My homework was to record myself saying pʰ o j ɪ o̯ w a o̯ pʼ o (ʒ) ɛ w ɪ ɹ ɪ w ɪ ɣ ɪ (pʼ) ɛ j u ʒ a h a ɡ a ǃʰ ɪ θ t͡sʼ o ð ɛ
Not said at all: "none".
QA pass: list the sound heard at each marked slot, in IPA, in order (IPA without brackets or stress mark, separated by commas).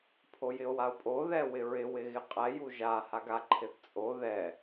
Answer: ð, qʼ